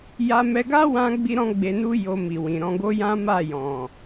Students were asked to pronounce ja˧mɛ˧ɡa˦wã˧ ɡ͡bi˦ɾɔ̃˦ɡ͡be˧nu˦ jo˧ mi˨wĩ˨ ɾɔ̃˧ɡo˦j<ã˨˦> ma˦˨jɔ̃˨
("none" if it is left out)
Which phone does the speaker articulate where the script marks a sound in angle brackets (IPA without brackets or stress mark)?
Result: ã˦